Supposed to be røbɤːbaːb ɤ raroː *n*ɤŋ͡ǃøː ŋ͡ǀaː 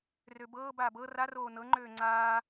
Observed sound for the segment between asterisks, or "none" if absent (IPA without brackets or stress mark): n